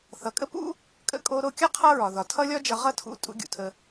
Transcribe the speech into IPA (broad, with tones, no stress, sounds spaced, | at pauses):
θ ʌ˨ kʼ ə˦ p ṵ˦ | kʼ ə̰˧ kʼ o˧ ɾ o˦˨ kʲ ʌ˦ qʰ ʌ˦ ɹ ɒ˨ ð ɒ˨ tʰ ʌ˦ lʲ ɒ˦ d͡ʒ ʌ˧ ʁ ʌ˦ tʰ ṵ˧ tʼ ṵ˨˦ ɡʲ ṵ˨ tʰ ə˧